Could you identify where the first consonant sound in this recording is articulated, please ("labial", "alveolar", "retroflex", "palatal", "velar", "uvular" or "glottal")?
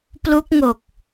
labial